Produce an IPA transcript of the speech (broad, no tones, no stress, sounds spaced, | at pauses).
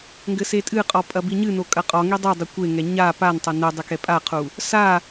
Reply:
ŋ ɡ ɘ s e tʼ ɨ qʼ ɔ pʼ ɐ b i ɲ ɨ n o kʼ ɐ qʼ ɔ ŋ i dˤ i dˤ ɨ kʷ e ŋ ɛ ɲ a p a n tˤ ɘ n ɨ dˤ ɨ k ɛ pʼ a qʰ u | s a